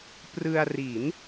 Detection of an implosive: absent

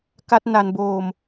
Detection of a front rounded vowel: absent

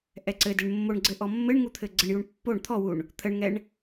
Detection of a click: present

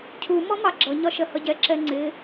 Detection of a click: present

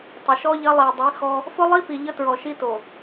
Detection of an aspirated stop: absent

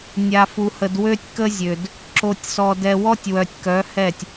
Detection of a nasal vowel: absent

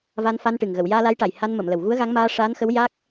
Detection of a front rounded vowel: absent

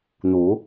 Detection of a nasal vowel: absent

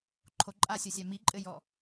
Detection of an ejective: present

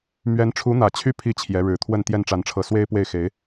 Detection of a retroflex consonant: present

